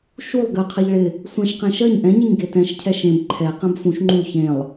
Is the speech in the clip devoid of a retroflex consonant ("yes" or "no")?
no